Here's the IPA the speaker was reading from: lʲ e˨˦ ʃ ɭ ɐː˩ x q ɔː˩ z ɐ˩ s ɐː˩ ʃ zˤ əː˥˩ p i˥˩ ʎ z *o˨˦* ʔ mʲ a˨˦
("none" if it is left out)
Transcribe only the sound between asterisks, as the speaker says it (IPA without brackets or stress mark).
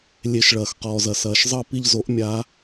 o˨˦